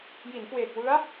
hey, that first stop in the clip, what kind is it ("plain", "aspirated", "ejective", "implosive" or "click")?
plain